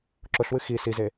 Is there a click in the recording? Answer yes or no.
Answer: yes